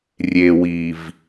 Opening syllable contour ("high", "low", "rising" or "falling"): low